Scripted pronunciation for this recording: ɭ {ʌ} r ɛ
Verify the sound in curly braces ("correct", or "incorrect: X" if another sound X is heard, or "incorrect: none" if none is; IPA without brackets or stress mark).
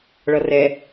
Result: correct